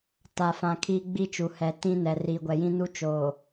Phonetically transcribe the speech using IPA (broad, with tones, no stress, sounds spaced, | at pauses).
t a˨ f ã˨ kʰ iː˦ ɡ͡b i˦ t͡ʃ u˨ h ɛ˨ t ĩ˦ n ɛ˨ r iː˨ ɡʷ ɛ˨ j ĩ˦ n u˦ t͡ʃ oː˨